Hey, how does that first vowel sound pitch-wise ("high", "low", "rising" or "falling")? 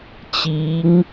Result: rising